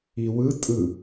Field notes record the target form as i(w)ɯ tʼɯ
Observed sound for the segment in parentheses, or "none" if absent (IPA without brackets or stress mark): w